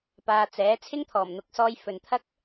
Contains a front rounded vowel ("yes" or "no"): no